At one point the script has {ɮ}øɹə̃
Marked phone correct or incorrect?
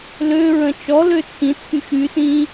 incorrect